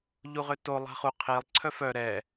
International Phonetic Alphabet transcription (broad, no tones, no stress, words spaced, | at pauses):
ʎuʁøto lˠa̤χu qʰilˠ ǀʰœfœ ɾɛ